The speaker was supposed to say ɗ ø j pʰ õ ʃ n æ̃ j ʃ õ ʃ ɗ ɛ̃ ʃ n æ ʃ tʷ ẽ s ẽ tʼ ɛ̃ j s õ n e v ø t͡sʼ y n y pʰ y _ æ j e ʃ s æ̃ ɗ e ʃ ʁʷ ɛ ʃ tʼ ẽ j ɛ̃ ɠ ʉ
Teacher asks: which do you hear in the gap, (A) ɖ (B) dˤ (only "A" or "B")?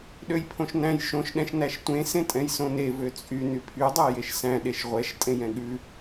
B